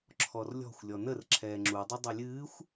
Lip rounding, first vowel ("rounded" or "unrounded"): rounded